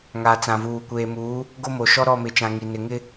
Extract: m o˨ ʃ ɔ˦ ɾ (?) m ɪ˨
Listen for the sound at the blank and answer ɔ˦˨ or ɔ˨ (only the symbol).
ɔ˦˨